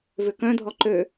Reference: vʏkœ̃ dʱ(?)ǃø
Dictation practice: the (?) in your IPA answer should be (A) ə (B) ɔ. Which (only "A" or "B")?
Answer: B